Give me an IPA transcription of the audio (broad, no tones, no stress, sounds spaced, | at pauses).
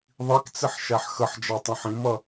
ðˤ i k t͡s ɪ ħ ʃ æ ħ x ə ħ d͡ʒ ɑ tˤ ũ ħ ĩ m ʌ